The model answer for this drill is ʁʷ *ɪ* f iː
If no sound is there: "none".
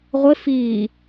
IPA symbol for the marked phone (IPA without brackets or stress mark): ɪ